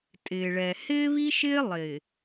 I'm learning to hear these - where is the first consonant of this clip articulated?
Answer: tongue tip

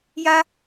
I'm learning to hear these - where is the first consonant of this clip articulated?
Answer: palate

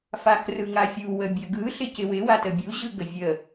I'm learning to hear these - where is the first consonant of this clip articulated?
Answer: lips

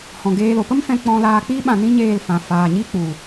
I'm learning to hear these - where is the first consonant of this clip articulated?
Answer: throat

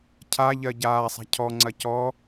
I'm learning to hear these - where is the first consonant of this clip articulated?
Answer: palate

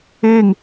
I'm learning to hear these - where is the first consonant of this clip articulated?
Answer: velum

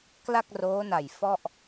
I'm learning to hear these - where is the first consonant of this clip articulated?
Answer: velum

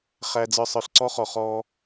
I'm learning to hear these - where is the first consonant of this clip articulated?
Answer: uvula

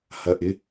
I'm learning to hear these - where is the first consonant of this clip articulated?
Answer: throat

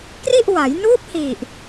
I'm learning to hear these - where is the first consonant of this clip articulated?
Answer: velum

